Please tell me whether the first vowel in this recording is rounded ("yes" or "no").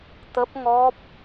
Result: no